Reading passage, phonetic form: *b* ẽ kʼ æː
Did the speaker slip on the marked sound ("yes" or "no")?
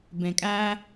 no